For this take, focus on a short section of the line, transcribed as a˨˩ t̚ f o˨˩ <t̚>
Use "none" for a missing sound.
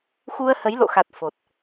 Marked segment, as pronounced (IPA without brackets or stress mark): t̚